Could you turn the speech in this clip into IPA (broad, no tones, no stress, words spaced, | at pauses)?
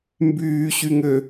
mbyːɕyŋø